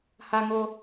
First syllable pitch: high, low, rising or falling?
high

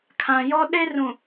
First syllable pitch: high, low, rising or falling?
low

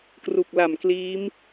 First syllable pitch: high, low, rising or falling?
low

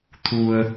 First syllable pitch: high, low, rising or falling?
low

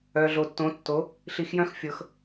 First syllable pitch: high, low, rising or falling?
low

